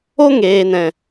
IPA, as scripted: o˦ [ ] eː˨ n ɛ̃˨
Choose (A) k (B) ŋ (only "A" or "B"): B